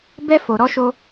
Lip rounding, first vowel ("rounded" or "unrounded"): unrounded